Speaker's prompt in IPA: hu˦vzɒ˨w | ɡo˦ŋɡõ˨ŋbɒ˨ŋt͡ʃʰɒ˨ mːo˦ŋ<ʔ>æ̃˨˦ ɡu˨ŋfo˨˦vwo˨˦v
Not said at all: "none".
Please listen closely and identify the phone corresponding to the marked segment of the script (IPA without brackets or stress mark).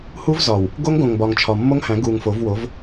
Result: h